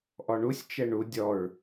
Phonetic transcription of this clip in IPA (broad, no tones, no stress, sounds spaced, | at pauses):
ʔ ɔ ɳ u sʲ t͡ʃ ɛ ɳ u dʲ ɔ ɹ